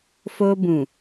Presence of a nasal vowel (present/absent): present